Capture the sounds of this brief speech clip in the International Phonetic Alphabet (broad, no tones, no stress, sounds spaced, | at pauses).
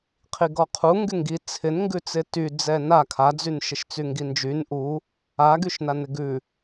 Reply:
qʰ i ɡ ɔ qʰ u ŋ ɡ y ŋ ɡ i t͡sʰ ɪ n ŋ ɡ ʉ t͡s ɪ t y d͡z ɛ n a kʰ a d͡z y n ʃ ɪ ʃ t͡s y ŋ ɡ i n d͡ʒ y n ʔ u | a ɡ y ʃ n a n ɪ ɡ ʉ